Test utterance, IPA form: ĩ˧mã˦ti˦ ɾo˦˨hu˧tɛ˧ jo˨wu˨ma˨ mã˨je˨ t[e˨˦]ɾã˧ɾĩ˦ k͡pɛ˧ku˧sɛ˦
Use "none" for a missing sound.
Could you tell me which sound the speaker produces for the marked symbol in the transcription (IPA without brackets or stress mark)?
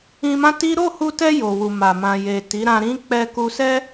i˨˦